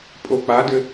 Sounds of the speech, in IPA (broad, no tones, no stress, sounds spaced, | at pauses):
pʼ o k͡p a d ɘ